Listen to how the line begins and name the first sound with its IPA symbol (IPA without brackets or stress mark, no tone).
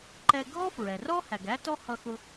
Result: ǃ